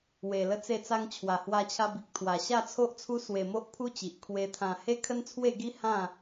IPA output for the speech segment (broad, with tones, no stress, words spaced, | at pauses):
we˧lə˦t͡se˥˧t͡sa˦ŋ t͡ɕʰwa˨˩hwa˧t͡ɕʰa˧bi˨k̚ t̪ʰwa˨˩ ɕa˥˧t͡sʰo˦ʔt͡sʰu˦ swe˧mo˦ʔpʰu˦t͡ɕi˨ʔ kʰwe˧t̪ʰã˧ he˦kʰə˦n t͡sʰwe˥˧ɡi˦ hã˥˧